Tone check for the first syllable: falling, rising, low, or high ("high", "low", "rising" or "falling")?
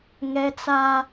high